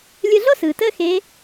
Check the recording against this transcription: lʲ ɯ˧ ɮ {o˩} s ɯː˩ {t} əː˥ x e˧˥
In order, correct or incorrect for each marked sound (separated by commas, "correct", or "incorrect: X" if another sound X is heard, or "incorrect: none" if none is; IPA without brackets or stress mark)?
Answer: incorrect: o˥, correct